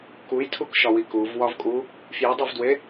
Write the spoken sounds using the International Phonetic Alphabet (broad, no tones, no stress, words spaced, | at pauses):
kujtʰukʃɒwi kuvwɒvkʼu | fjidˤivdwe